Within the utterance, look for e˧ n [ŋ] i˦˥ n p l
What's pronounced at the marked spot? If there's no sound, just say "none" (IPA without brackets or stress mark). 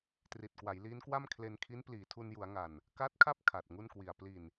kʰ